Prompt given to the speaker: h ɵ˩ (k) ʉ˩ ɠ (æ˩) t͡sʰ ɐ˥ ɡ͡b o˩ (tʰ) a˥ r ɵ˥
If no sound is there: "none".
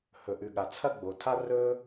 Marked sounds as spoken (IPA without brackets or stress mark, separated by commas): ʔ, a˩, tʰ